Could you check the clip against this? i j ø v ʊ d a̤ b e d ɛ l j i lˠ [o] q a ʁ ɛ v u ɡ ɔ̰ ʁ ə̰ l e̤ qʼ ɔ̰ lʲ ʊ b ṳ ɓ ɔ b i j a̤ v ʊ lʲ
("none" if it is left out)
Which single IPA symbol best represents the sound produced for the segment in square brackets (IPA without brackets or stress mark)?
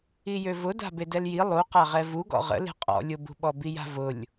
u